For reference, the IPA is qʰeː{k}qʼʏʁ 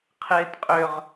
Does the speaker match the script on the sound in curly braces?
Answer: no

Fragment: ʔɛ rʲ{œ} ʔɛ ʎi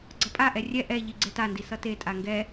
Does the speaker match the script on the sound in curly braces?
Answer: no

